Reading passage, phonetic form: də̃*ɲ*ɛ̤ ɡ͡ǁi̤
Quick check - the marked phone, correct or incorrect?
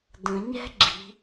correct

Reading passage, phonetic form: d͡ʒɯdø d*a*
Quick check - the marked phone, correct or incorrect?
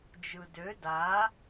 correct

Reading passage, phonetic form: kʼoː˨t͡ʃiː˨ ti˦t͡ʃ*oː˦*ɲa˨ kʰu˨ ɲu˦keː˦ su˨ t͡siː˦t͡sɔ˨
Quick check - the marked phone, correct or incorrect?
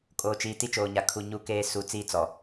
incorrect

